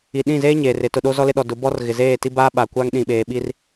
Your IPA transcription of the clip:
i˨ ɗ ĩ˦˨ z eː˦ ɲ eː˨ r ɪ˨˦ t ʊ˨ ɗ o˦ z ɔ˦ l ɪ˦ ɗ ɔ˨ d ʊ˨˦ b ɔ˦ r ɣ ɪ˨ z eː˦˨ t i˦ b aː˦ ɓ a˨ kʷ a˦ ŋ ɗ ĩ˨ ɓ eː˨ ɓ i˦ r

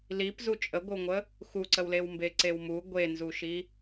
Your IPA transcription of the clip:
l i p z u t͡ʃʼ ə ɡʷ ə w ŋʷ ə | x u ǀ ə w l e w m b e ǀ e w m u ɡʷ e n z u ʃ i

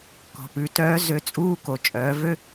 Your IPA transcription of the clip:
k ɔ̤˩ p ʉ˩˧ t œː˧˥ z ø˧˥ t͡sʼ uː˥ k o˩ t͡ʃʼ œː˩˧ v ø˥

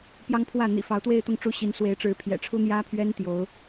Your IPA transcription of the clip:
p j ɑ˥ ŋ pʰ w ä˥˩ n̪ ḭ˨˩ f ɑ˧˥ ʊ̯ t̪ w e˥˧ ɪ̯ t̪ ʊ˥˩ ŋ ʈ͡ʂ u˥ ɕ i˧˥ n s w e˧˥ ɪ̯ ʈ͡ʂ ɻ̩˧˥ pʰ j ɛ̰˨˩ ʈ͡ʂʰ u˥ n̪ j ä˥ pʰ ɥ ɛ˥ n t̪ j o˧˥ ʊ̯

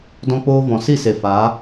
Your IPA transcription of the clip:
d ɔ̃˧ k͡p oː˧ v ɔ̃˨ s i˦˨ s e˨ f a˨˦

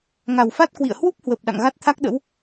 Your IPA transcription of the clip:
ŋ a˨˩ w f a˦˥ t̚ k w ḭ˧˨ ə̯ h w u˦˥ p̚ h w ə˨˩ p̚ ɗ a̰˧˨ ŋ ɣ a˦˥ t̚ t̪ʰ a˦˥ k̚ ɗ ə̰˧˥ w

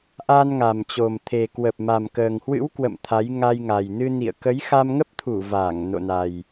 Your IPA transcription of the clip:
ʔ a˧ n ŋ a˨˩ m t͡ɕ o˨˩ m t̪ʰ e˨˩ k w ə˨˩ p̚ m a˨˩ m k əː˨˩ ŋ h w ɨ̰˧˥ w k w ə̰˧˨ m t̪ʰ a˨˦ j ŋ a˧ j ŋ a˨˩ j n ɨ˧ n ḭ˧˨ ə̯ k ə˨˦ j x a˧ m ŋ ə˦˥ p̚ t̪ʰ u˧˩ v aː˧˩ ŋ n o̰˧˨ n a˨˩ j

